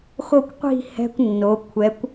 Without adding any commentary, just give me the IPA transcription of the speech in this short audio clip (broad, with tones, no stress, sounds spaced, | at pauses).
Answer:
x o˥˧ kʷ qʷ i̤˥˧ h ɛ̤˧ kʷ nː o˩˧ kʷʰ ɛ˩˧ kʷ